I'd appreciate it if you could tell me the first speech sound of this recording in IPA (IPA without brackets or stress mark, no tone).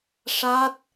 ʂ